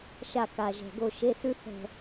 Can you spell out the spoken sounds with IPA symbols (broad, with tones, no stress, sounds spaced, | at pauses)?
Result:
ʃ a˦˨ k a˨˩ ʒ ɛ̤˨˩ ɡ o˦˨ ʃ e˧˥˧ s ʉ˥ θ ɛ̤˦˨